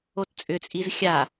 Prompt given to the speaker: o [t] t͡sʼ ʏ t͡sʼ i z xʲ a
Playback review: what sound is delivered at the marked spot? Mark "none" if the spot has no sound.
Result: t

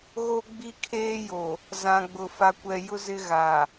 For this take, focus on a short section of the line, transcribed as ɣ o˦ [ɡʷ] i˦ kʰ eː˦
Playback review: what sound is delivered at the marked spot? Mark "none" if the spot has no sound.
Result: ɡ͡b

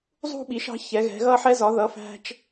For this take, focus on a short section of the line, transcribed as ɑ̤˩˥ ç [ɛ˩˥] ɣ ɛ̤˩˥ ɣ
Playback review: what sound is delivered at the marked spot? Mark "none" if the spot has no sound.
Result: ɛ˩˥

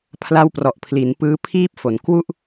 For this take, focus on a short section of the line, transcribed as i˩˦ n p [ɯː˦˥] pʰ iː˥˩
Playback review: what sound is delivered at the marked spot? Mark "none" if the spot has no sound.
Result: ɯː˦˥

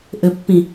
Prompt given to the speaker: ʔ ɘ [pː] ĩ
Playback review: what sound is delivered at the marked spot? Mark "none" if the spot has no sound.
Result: pː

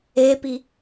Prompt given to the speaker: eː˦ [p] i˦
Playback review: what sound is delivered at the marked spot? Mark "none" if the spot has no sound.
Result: p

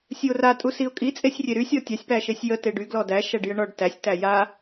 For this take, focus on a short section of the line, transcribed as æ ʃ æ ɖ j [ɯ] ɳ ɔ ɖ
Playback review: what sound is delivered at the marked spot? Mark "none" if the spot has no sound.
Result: ə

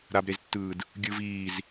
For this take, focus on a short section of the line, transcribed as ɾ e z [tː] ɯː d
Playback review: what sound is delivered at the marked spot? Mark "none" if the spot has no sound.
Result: tː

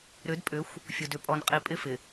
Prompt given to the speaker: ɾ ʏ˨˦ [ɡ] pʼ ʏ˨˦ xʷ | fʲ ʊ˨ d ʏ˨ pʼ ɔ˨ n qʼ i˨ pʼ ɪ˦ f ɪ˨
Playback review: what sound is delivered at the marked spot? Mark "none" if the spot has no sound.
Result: d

